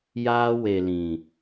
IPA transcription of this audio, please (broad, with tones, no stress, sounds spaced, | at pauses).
j aː˧ w e˨ l ĩ˨